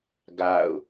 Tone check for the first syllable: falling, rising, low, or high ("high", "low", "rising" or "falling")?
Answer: falling